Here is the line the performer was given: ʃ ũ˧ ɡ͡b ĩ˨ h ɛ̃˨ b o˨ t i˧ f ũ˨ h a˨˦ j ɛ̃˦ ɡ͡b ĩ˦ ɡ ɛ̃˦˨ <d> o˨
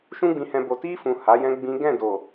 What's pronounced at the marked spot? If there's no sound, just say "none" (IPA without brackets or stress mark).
d